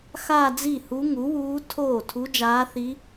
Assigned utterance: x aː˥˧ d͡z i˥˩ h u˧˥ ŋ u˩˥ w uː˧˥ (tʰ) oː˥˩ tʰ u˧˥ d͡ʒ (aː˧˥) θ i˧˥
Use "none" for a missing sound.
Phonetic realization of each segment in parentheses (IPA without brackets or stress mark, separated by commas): tʰ, aː˧˥